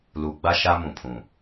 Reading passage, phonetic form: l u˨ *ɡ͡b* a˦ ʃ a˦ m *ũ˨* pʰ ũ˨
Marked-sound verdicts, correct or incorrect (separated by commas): correct, correct